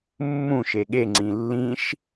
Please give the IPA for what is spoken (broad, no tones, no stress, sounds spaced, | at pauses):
mː ũ ʃ e ɠ e ŋ͡ǀ ĩ lː ĩ ʃ